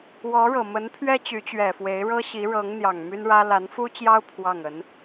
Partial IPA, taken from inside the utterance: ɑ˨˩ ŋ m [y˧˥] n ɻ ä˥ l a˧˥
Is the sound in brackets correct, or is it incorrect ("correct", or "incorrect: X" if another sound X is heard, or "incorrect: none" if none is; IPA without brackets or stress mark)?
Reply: incorrect: y˥